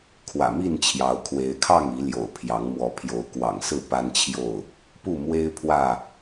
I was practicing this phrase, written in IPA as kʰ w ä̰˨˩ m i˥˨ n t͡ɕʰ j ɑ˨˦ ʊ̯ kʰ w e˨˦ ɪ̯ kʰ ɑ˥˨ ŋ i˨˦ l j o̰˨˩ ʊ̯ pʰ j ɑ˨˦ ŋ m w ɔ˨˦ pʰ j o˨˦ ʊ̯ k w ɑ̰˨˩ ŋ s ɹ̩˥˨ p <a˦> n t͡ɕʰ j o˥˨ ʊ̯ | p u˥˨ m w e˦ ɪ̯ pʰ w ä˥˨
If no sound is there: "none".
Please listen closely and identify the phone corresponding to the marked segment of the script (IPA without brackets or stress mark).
a˦